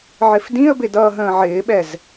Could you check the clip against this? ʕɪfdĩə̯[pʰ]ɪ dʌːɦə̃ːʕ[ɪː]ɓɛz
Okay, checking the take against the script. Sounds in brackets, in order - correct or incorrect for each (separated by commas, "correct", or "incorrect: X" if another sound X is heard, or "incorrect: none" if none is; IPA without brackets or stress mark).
incorrect: b, correct